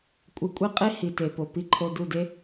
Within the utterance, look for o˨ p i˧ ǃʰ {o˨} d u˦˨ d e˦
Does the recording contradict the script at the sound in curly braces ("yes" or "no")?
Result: yes